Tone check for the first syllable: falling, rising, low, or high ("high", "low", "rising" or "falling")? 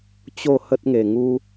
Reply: falling